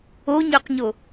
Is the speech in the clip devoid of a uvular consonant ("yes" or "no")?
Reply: no